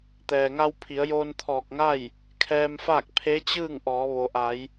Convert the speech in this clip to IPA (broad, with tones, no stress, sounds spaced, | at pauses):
t̪ ɛː˩ ŋ a˧ w pʰ i˩˧ ə̯ j oː˧ n t̪ʰ ɔː˧˩ k̚ ŋ a˥˨ j | kʰ ɛː˧ m f aː˥˨ k̚ pʰ e˧˥ t͡ɕ ɯː˥˨ ŋ ʔ ɔː˩˧ ʋ o˩ ʔ a˩˧ j